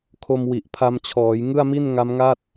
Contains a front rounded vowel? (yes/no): no